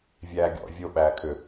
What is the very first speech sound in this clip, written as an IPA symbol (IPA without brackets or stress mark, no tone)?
vʲ